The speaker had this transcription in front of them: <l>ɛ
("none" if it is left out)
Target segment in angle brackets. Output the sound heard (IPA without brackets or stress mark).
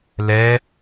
l